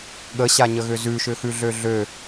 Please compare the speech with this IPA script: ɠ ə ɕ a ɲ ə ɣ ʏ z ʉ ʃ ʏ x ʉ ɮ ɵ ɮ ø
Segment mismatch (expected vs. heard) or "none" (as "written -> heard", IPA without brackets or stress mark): ɵ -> ø